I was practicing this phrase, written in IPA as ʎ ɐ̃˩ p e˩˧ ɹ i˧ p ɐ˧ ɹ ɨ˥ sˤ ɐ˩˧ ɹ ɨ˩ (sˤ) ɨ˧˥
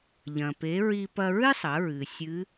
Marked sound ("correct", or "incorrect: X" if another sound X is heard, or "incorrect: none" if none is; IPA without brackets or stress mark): incorrect: sʲ